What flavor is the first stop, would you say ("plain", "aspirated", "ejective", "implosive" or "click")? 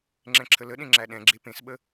click